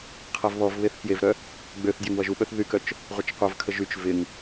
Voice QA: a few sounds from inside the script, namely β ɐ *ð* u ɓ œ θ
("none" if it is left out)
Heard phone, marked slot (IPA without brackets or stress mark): ʒ